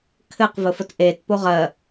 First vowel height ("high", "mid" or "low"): mid